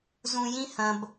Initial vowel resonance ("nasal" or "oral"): nasal